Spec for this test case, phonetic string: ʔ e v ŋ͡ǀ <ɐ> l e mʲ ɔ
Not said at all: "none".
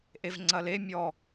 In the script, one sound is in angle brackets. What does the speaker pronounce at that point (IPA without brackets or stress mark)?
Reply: ɐ